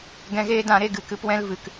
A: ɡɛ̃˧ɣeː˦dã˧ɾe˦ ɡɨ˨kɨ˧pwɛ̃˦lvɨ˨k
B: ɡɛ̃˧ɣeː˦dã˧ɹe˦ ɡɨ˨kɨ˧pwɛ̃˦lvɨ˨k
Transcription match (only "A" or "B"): A